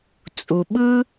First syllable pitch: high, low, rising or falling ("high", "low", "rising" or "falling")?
low